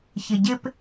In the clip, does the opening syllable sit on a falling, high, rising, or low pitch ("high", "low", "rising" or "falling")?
low